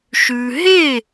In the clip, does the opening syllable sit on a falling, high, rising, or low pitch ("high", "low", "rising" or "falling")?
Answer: low